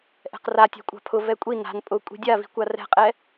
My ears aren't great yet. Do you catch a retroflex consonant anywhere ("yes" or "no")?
no